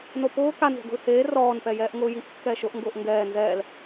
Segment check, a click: absent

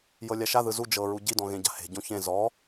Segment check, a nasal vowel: present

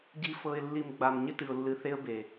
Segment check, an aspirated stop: absent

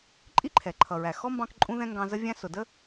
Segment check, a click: present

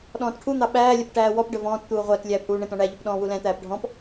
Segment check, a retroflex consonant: present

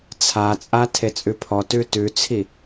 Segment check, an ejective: present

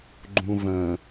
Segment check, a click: present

